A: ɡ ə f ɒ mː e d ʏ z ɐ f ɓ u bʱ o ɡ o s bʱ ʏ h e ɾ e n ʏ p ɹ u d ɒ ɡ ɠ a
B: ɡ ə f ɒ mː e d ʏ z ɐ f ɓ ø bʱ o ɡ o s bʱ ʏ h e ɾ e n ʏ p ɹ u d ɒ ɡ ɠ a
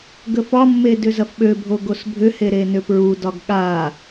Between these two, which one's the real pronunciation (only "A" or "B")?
B